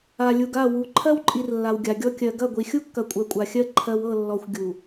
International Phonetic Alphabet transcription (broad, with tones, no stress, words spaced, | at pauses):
a˨lʲu˨ɡa˦˨ wu˨ ǃʰɜ˦wǃʼi˨r lːa˨wɡʲa˨ɡʲɔ˦ kʲɜ˨ɡɐ˦˨ɡʷi˨ xʲu˦kːɐ˨kʷʼɜ˨ kʷʼa˨xʲɜ˦ ǃʰɜ˨wɤ˦˨ lːɔ˨xʷ ɡʲu˨